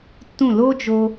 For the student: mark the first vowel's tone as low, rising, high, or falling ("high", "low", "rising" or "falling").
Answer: falling